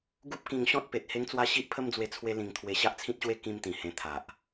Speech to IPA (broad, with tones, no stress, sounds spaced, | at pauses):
ɡ u˦ p̚ k ĩ˧ ŋ ɕ ɔ̃˦ t̚ p e˨ t̚ h e˦ ŋ t͡s w a˦ ɕ i˦ ʔ pʰ ə˦ m d͡z w e˧ t͡sʰ w e˦ l ĩ˧ ŋ t̪ʰ w e˧ ɕ a˦ ʔ t͡sʰ ĩ˦ t̚ ɕ w e˦ k ĩ˦ m t̪ ĩ˨˩ h ẽ˧ t̪ʰ a˨ ʔ